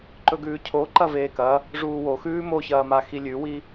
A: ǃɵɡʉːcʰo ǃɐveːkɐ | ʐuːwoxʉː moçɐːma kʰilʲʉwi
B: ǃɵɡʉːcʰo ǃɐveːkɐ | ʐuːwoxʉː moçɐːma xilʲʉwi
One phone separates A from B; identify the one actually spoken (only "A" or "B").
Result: B